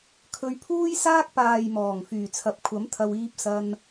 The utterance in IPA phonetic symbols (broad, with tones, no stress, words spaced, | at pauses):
kʰɵ˧ɥpʰuː˥jsaː˥k̚ paː˨jmɔː˨˩ŋ fyː˨˩t͡sʰɐ˨˥p̚kʷʰɐ˨˥m t̪ʰɐ˧wiː˧p̚ sɐ˧n